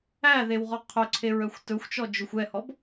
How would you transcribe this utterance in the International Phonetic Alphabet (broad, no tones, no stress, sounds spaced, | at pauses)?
æ ð e w ʁ ɔ qʰ œ ǀʰ e ɹ œ xʷ t ɵ xʷ t͡ʃ ɔ d͡ʒ ɵ xʷ ɛ h ɔ b